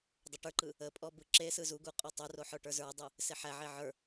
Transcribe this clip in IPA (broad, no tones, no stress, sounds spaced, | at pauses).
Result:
dˤ ə ʈ ə˞ ǃ ɯ | ə pʼ ɔ b ɯ ǁ e s ɯ z u ɡ u qʼ ɔ tˤ u r o ħ ə˞ ʈ ə˞ z ə˞ dˤ ɯ | s e ħ æ ʕ e ʕ ə˞